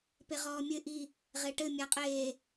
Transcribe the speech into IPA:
p e ʁ ɔː mʲ ɘ ʔ i | ʁ e ʈ ɘ mʲ a qʼ eː

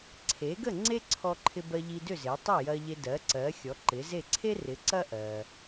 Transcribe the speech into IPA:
ǀʰ e˩˥ ɡ ə˥˩ ŋ͡ǀ e˥ ǀʰ ɔ˧ ǃʰ ɪ˧ b ɜ˧ ʎ i˧ d ʏ˥˩ z e˩˥ tˤ e˥˩ j ɐ˧ ʎ e˧ d ɜ˩˥ ǀ ɜ˩˥ xʲ ɔ˩˥ ǃ ɪ˩˥ z e˥˩ ǀʰ e˥ r ɪ˩˥ ǀ ɐ˥ ʔ ɜ˩

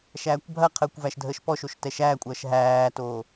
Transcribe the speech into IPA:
ʃ æː kʷ bʱ ɐ qʰ əː kʷ v æ ʃ dʱ əː ʃ p ɔ ʃ o ʃ t ɛ ʃ æː kʷʼ ɐː ʃ ɦ æː t oː

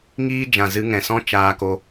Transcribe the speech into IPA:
ŋ iː˦ d͡ʒ ã˨ z ɨ˧ ŋ ɛ̃˨ s ɔ̃˦ t͡ʃ aː˧ k o˧

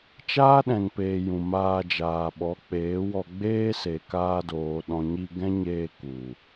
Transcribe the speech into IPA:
t͡ʃ aː˦ ɗ ɛ̃˨ ŋ p eː˨ j ũ˨ m aː˧ d͡ʒ aː˨ ɓ ɔ˨˦ k͡p eː˨˦ w ɔ˧ ɡ͡b eː˦ s e˨ k aː˧ d oː˨ ɗ ɔ̃˨ ɲ i˧ ɡ ɛ̃˦ ɲ eː˧ k u˨

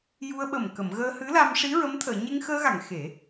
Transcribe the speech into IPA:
j u˧ ə̯ ɓ ə˨˩ m k ə˨˩˨ m ɣ əː˧ h ɨ˧˥ l a˧ m ʂ i˧˥ ɹ ə˧˥ m t̪ʰ əː˨˩˨ ɲ e˧ ŋ x əː˧ ɣ a˨˩˨ ŋ x e˨˩˦

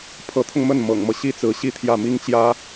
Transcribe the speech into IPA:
pʰ ɤ˧˥ t̪ʰ ʊ˧ ŋ m ə˥˩ n m ɤ̰˨˩ ŋ m ɤ˦ ɕ i˥ t͡s ɹ̩˧˥ ɕ i˥˧ t̪ʰ j ä˥˩ m i˥ ŋ t͡ɕ j ä˥

